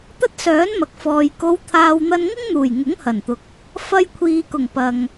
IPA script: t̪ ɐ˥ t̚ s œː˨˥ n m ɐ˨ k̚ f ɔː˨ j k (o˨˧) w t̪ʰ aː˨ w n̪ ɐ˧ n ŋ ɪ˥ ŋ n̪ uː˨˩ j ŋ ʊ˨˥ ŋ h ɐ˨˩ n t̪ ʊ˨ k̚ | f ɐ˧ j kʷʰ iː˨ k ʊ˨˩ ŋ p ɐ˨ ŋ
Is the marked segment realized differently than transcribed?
no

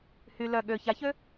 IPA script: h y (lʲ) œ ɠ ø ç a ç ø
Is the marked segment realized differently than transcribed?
yes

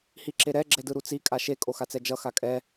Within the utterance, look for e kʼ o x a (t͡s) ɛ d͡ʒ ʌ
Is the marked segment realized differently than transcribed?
no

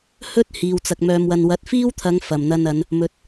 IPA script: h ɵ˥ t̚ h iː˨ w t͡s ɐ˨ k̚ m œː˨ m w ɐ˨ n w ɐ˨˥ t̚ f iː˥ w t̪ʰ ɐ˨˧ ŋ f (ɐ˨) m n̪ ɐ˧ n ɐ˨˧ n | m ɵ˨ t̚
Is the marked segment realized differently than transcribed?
yes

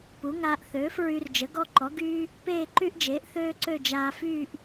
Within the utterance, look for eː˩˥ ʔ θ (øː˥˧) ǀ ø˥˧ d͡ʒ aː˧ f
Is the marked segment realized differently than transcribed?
yes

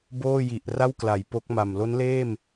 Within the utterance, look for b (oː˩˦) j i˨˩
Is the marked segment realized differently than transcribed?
yes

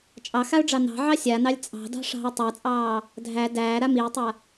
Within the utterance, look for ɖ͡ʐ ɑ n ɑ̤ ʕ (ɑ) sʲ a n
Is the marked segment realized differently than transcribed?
no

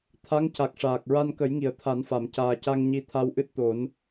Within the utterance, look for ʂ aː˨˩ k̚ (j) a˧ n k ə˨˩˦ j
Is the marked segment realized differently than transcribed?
yes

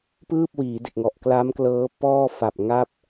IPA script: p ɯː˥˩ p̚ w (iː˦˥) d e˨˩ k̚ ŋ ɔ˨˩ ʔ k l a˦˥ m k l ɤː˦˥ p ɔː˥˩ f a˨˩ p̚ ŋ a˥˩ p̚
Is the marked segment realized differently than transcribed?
yes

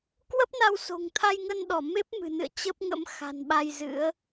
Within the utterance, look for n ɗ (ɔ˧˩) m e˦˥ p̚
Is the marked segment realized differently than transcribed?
no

